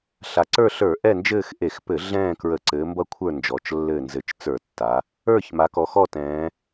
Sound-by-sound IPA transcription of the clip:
ɬ a˩˧ ǀ ə˞˦˨ ɬ ə˞˧˩˧ ʔ ɛ˦˨ n d͡ʒ ɘː˦˨ x ʔ e˧˩˧ x p ɘ˧˩˧ ɮ ɛ̃ː˦˨ k ɹ ə˧˩˧ ǀ ɘː˩˧ m b ʌ˦˨ kʷʰ ə˞˦˨ n d͡ʒ ɔ˩˧ t͡ʃ lː ɘː˦˨ n z ɘ˧˩˧ t͡ʃ t͡s ə˞˧˩˧ tː a˩˧ | ə˞˦˨ ç m a˩˧ k ɔ˩˧ x ɔ˦˨ t ɛ̃ː˩˧

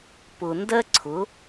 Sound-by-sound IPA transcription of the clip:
p ʊ˨ n d ɜ˦ ǀʰ ʊ˨˦

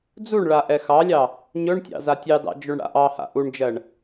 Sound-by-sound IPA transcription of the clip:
d͡z u ɳ ɭ a ʔ ɛ x ɑ lʲ ɑ | ɲ ɵ ɳ tʲ ɑ̰ z a tʲ ɑ d ɑ̰ d͡ʒ o ɳ ɽ a̰ ʔ ɑ h a̰ ʔ u ɳ d͡ʒ ɜ ɳ

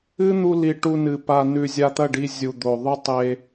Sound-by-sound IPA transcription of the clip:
ɨ˦ n̪ u˧ l i˨ ʈ u˧ n ɨ˨ p a˨ n ʉ˨ zʲ a˧ t̪ ɐ˦˨ ɖ i˧ zʲ u˨ d̪ o˨ ðˤ ʉ˦ tˤ e˧

